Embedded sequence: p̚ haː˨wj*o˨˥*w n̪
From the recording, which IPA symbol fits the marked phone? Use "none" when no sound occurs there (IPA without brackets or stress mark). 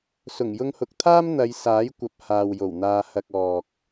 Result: o˨˩